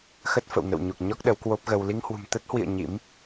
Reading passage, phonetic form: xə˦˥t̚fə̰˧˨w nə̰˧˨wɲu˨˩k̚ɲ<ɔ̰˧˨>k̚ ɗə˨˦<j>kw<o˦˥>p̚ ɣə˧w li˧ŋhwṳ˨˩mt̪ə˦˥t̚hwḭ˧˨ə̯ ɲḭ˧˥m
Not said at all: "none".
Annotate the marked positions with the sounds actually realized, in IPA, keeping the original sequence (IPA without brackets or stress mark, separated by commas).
ɔ˦˥, w, o˦˥